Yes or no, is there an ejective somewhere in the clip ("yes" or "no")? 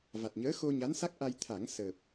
no